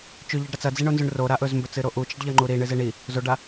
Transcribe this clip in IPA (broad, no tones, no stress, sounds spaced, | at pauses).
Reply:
t͡ʃ ʉ ʎ e ɖ ɾ ɐ t͡s ɐ d͡z i ɳ o n z ʉ ɳ r o ɾ a ʔ ɵ z m b ɵ t͡s ɨ ɾ o ʔ u t͡ʃ i ɖ ʎ ɐ ŋ͡ǃ u ɾ i ɳ ɨ z e ɳ i | z o ɖ a